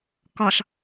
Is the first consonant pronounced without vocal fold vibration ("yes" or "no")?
yes